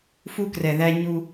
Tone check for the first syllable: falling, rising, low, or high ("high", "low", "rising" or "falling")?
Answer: high